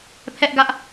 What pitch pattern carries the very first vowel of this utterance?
high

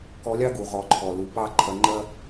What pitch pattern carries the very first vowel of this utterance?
rising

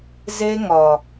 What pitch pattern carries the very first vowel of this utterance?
high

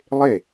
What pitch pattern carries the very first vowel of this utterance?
falling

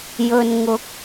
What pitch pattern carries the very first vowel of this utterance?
low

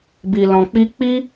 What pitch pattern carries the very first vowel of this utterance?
low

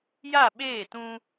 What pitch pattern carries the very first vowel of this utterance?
falling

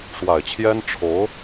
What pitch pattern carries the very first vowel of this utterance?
low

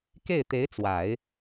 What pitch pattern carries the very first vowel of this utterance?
falling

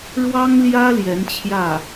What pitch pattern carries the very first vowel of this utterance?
high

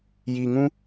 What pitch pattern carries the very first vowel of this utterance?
low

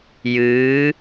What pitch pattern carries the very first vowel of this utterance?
rising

